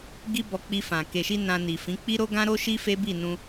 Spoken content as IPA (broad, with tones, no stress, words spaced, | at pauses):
ɡi˦bɔ˧ k͡pi˧fã˨ ke˨ʃi˧ nã˧ni˨fĩ˨˦ k͡pi˦ ɾo˦ɡã˦ɾo˦ʃi˦ fe˦bi˦˨nũ˧